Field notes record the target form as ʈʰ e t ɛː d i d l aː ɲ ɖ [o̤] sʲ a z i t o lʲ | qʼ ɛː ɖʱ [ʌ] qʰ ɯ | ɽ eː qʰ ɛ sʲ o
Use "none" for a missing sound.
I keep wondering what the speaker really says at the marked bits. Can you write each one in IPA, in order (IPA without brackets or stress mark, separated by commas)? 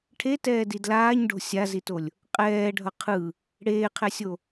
o̤, ʌ